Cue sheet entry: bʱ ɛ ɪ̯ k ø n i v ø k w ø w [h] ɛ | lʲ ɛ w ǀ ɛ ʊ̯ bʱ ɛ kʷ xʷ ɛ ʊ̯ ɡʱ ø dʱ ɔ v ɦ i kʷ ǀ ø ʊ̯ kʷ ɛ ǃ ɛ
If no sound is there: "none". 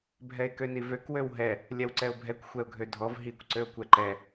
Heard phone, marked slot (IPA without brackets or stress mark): ɦ